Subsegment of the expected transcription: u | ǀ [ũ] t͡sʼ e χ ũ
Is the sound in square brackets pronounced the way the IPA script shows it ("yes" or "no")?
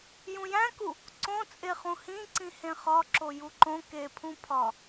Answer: no